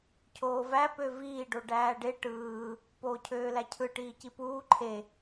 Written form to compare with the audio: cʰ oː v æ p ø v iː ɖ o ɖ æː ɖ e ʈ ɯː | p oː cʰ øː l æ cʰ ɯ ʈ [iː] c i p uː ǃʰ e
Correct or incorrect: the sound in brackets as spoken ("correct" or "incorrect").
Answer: correct